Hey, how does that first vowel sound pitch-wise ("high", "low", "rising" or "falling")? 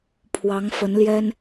rising